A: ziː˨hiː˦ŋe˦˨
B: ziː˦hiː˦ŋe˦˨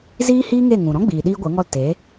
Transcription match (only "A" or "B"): B